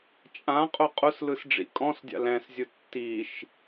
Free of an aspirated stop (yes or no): yes